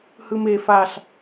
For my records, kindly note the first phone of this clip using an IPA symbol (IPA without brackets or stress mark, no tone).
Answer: h